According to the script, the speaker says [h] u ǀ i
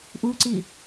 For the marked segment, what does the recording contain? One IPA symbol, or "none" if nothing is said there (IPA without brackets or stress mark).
ʔ